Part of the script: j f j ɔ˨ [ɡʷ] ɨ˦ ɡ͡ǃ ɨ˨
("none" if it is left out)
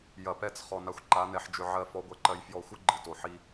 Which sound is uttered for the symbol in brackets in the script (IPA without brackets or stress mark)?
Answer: xʷ